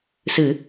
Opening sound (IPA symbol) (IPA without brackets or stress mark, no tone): s